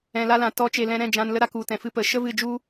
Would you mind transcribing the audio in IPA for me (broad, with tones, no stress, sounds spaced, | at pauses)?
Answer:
ɛ̃˨ l a˧ l ã˨ t ɔ˨˦ t͡ʃ e˨ l ɛ̃˧ ɾ ɛ̃˦˨ d͡ʒ ã˧ n l ə˦ ɾ a˦ k u˨ t ɛ̃˨ f ɨ˧ p ə˨˦ ʃ ə˦ v ɨ˦˨ d͡ʒ u˦